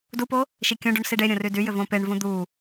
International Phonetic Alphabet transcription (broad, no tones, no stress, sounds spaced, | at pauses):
d u p o | ʃ i kʲ õ ɖ u ɳ s i ɖ e ɾʲ õ r y d y j ʏ v õ p e ɳ v ũ d̪ u